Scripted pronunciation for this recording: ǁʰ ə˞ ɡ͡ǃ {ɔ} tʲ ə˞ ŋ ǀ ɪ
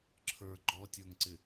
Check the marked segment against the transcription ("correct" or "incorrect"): correct